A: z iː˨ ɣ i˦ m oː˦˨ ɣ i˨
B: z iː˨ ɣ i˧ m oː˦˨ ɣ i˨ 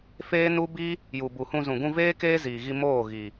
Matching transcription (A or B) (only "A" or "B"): B